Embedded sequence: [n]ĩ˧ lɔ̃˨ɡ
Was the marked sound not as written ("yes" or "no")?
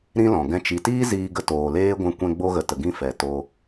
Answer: yes